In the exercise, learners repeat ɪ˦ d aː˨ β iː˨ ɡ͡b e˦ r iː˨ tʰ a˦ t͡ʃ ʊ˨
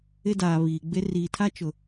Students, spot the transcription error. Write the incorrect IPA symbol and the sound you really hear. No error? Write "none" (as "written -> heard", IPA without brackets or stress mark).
none